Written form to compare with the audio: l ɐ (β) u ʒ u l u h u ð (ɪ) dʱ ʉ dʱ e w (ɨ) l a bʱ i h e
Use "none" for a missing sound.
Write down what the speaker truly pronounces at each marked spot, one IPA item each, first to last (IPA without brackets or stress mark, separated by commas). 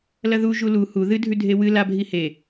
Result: ð, ɨ, ɨ